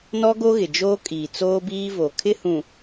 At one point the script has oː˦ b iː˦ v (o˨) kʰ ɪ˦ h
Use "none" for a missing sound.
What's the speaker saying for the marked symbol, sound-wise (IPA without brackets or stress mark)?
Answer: o˨